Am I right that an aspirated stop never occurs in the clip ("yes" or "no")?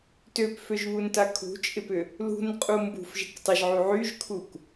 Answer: no